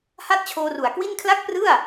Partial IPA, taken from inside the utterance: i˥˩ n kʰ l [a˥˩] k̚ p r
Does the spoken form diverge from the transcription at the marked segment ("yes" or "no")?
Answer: no